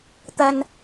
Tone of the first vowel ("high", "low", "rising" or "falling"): high